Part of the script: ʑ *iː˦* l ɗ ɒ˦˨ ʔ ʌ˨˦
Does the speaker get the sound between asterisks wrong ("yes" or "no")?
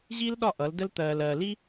no